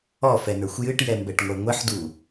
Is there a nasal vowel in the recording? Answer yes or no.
no